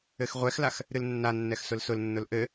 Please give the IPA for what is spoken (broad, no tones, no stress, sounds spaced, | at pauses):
ɘ x ʁʷ ɛ x l a x | ɾ ɨ l nː a nː ɛ x s ʊ l s ʊ l nː ʊ l ʔ ɘ